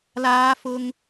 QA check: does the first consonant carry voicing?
yes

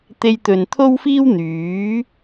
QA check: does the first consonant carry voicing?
no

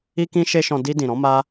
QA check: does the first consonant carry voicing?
no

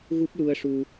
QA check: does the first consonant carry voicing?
yes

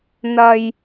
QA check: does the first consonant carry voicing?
yes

